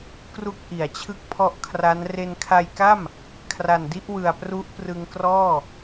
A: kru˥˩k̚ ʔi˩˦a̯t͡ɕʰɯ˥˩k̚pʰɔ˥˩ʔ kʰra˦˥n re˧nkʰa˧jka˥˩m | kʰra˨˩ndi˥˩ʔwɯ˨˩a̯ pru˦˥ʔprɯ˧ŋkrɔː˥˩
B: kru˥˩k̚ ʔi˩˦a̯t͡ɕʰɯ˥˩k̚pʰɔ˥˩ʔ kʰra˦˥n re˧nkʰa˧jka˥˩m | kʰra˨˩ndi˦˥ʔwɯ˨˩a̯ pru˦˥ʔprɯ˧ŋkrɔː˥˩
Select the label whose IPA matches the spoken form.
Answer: B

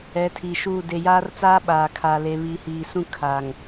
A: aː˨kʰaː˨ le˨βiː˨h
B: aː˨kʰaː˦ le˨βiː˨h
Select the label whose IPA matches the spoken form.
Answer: A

